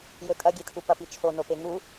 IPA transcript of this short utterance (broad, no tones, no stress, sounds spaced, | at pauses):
j ɵ tʼ ɐ ɡʲ e tʰ u p ɐ p i t͡ʃʰ o n o p e ŋ u